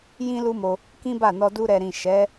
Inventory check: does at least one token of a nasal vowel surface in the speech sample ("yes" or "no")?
yes